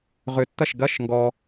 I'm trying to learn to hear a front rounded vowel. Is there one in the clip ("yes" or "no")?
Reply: yes